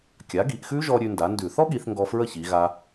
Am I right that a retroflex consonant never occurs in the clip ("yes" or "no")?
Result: yes